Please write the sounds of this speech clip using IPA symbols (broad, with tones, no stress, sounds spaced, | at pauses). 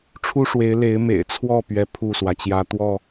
ʈ͡ʂʰ u˦ ʂ w e˨˦ ɪ̯ l e˨˦ ɪ̯ m ḛ˨˩ ɪ̯ t͡sʰ w ɔ˥˨ p ɥ ɛ˨˦ pʰ u˥˨ s w ä˩ t͡ɕ j ä˦ t̪ w ɔ˥˨